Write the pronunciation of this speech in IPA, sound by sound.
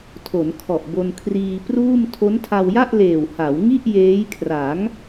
tʰ o˩˦ n kʰ ɔ˨˩ ʔ b o˧ n kʰ r iː˧ p r uː˥˩ m tʰ o˦˥ n tʰ a˧ w j a˥˩ ʔ l eː˨˩ w h a˩˦ w ŋ i˥˩ ʔ j eː˦˥ j kʰ r a˩˦ ŋ

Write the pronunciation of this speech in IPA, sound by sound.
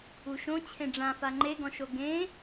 u ʃ õ t͡ɕʰ ẽ ɖ͡ʐ ã f a ŋ͡ǃ e ɡ ɔ̃ ʃ o ɡ ẽ

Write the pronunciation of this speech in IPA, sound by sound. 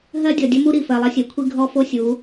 ɦ ɜ˦ dʲ ɔ˨ dʲ ɐ˦ m u˦ ɾ i˨ f ɜ˨ lˠ ɐ˦ sʲ ɜ˨ kʷʰ i˦ ɡʱ ɔ˦ f o˦ sʲ u˨˦

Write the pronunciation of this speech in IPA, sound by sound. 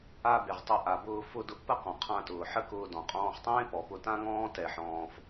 a˧ b e˩ ʁ tˤ ʊ˧ ʔ a˩ b ʊː˧ f ʊ˧ d ʊ˧ ʔ p ə˥ q ɔ̃˩ qʰ ã˧ t ʊː˩ ħ ə˥ k ʊː˧ d ɔ̃˩ qʼ ɔ̃ː˧ χ tˤ ẽː˥ p ɔ˩ p ʊ˧ t ã˥ ŋ ɔ̃ː˥ t ɛ˧ ħ ɔ̃ː˧ f

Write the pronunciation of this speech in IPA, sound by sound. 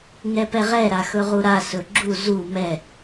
ŋ ɛ p ɛ ʁ ɛ ɾ a x ɵ ʁ u ɾ a s ɵ ɡ͡ǁ u z u m ɛ

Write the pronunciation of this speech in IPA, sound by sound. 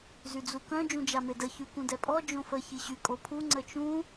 z y d͡z u k œ̃ d͡ʒ ũ d͡ʒ a m e d ə ç y k ũ d ɛ pʼ ɔ d͡ʒ õ f ə ç i ɕ y kʼ o pʰ u ŋ͡ǀ ə t͡ʃ ũ

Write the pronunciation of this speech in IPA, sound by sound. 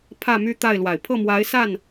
pʰ ä˥˩ m y˥ t̪ a˥˩ ɪ̯ l w a˨˩ ɪ̯ pʰ ɤ˥˩ m w a˧˥ ɪ̯ s a˥˩ n

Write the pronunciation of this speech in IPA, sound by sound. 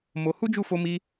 m o˧ h u˦ d͡ʒ u˦˨ f o˧ m i˧

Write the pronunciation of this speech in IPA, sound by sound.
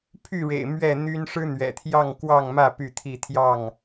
pʰ y˥˨ ɻ ḛ˨˩ ɪ̯ m ɥ ɛ˥˨ n̪ y˦ n ʂ ɻ̩˦ n̪ ɥ ɛ̰˨˩ t̪ʰ j ɑ˥˨ ŋ k w ɑ˥˨ ŋ m ä˥˨ p y˥˨ t̪ʰ i˥˨ t̪ʰ j ɑ˥˨ ŋ

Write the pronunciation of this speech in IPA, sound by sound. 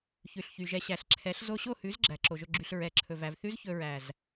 ç ʉ˨ ɬ ç y˨ ʒ ɛ˧ ɕ æ˨ ɬ ǁʰ ɛ˨˦ ɬ z o˧ ɕ o˦˨ h ʉ˨˦ z ɡ͡ǁ æ˨ ǁ o˨ ʒ ɵ˧ ɡ͡ǁ y˨ ɬ ɹ ɛ˨˦ ǁʰ ɵ˨ v æ˨ v θ ʉ˦ z ç ɵ˧ ɹ æ˨ z

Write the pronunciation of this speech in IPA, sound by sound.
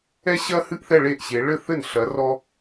ɛ˥ ɕ ɐ˥ h ɨ˥˧ ʔ θ ɛ˥˧ ɭ e˥˩ ʔ ɕ e˨˦ ɭ ɘ˥˧ θ ɘ˥˩ n ɬ ɐ˨˦ r ɔ˥

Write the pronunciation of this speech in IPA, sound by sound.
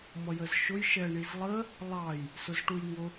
m ʌ j ə z ʃ ʊ j ʃ ɛ ɳ i z lˠ ə | lˠ ɑ j | s ʊ z ʈ u j ŋ ʊ

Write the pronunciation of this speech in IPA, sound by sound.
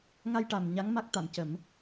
ŋ a˧ j ʈ a˨˩ m ɲ a˧˥ ŋ m a˦˥ k̚ t̪ a˨˩˨ m c ə˨˩˦ m

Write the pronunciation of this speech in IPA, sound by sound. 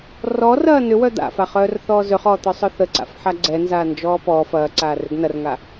r ɔ r ɐː n ʏ w œ d̪ a̰ f a χ œː r θ ɔː z ø χ ɔː t̪ œ sˤ œ θ ə ǀ a̰ f ħ a ɡ͡ǀ ɛ n z aː n d͡ʒ ɔː p ɔ f ɐː ǀ aː r ʏ ɡ n ɐ r ŋ a

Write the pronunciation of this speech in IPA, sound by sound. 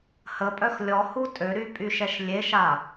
h ə pʼ œ x lʲ ɔ h u tʼ ø ɾ y pʼ y ʃ ɛ ʃ lʲ e ʃ a

